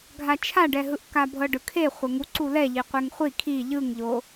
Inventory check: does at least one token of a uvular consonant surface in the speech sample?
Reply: yes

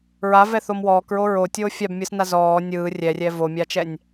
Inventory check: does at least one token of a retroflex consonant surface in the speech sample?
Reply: no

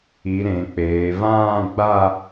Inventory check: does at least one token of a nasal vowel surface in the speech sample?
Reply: yes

